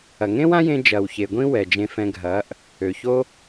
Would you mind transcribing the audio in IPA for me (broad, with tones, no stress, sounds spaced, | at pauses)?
ɐ˨ ŋ ẽ˦ w ã˦ j ẽ˧ d͡ʒ ɐː˨ w ç e˨ ɡʷ ĩ˦ w ɛ˨ d͡ʒ ẽ˧ f ɛ̃˧ ɡʱ ɐː˨˦ ʔ | ø˨ ç o˦